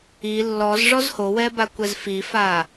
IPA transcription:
i lː ɔ z ʐ ɔ z h o w ɛ b a kʷ ɛ z f i f a

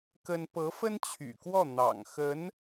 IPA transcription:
k ə˥ n p ɤ˧˥ f ə˥ n t͡ɕʰ y̰˨˩ k w ɔ˥˩ n̪ ɑ̰˨˩ ŋ x ə˧˥ n

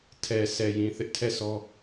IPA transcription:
tʰ ɛ˨ sʰ ɛ˨ j ĩ˨ θ ɪ˦ ʔ tʰ ɛ˦˨ s ɔ˦

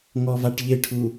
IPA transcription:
ŋ ɔ v a ʈ ʎ ɪ ʈʰ u

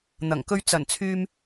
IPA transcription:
n̪ ɐ˨˩ ŋ k ɵ˧ ɥ t͡s ɐ˨˩ n t͡sʰ yː˧ m

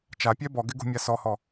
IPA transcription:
t͡ʃ a pʲ ɛ b ɔ ɡ ɪ ɡ ṳ mʲ a s ɔ h ɔ

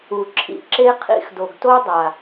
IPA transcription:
u˨ ǁʰ ḭ˦ ǁ e˦ qʰ ḭ˦ x d o˨ ɡ t o˦ dˤ a˨

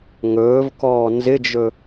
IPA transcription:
ŋ ɵː v k ɔː n z ɪ d͡ʒ ɵ

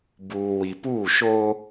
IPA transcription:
b uː˨ w i˨ p uː˦˨ ʃ oː˦

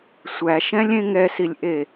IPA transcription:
sʷ æ ʃ ɛ̃ lʲ ẽ ŋ ɛ s i lʲ ʔ e

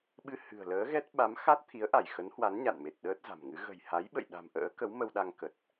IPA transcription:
ɓ ɨ˧ h ɨ̤˨˩ ə̯ l əː˨˦ ɣ ɛ˦˥ t̚ ɓ a˨˦ m x a˦˥ t̚ t̪ʰ i˨˦ ə̯ ʔ a˧˩ j x ə˨˦ n h w a˨˦ n ɲ a̰˧˨ n m e˨˩ t̚ ɗ əː˦˥ t̚ z a̤˨˩ m ŋ ɨ˨˦ ɣ ə̤˨˩ j h a˨˦ j ɓ ə̰˧˨ j ɗ a̤˨˩ m ʔ ə̰ː˧˥ k ə˨˦ w m ə˧ w ɗ a˧ ŋ k ə˨˩ t̚

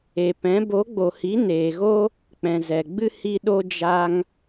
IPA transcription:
e˨ p ɛ̃˨˦ b o˨˦ ɡ͡b o˨ h i˨˦ n eː˨ ɣ o˦ | k͡p ɛ̃˨ z ɛ˨ ɡ͡b ɨ˦ h i˦ ɗ o˦ d͡ʒ a˦ ŋ

